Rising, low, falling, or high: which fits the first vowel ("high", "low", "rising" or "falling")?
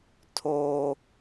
high